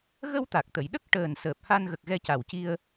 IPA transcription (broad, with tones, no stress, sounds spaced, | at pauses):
ɣ ə˧ w t̪ a˨˩ k̚ t̪ ə˨˩˨ j ɗ ə˦˥ k̚ ʈ əː˨˩ n s əː˨˩ p̚ h a˧ n ɣ ə˨˩ k̚ ɣ ɛ˧ c a˨˩ w c i˧ ə̯